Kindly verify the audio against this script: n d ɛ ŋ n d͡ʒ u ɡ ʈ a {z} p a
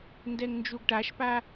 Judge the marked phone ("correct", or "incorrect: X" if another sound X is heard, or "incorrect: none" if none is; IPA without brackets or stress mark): incorrect: ʃ